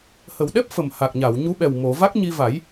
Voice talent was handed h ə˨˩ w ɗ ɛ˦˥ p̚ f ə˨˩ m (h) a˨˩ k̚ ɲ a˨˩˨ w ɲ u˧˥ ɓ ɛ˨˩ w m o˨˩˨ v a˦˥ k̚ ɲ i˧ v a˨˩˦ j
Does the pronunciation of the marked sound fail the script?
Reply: no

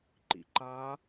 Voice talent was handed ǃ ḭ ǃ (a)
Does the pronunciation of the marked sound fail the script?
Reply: no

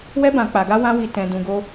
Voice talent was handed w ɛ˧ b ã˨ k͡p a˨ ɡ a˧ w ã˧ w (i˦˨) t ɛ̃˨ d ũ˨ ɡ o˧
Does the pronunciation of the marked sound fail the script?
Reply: yes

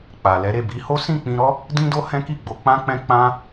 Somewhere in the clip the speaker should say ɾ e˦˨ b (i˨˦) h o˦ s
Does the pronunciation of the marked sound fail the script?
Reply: no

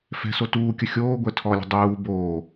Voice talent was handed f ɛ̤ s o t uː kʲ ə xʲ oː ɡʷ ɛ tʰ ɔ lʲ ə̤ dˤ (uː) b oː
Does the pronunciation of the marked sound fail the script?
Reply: no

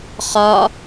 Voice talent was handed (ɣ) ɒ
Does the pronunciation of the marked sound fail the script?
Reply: yes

